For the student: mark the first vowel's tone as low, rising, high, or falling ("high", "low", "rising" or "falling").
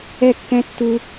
high